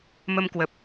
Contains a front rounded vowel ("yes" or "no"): no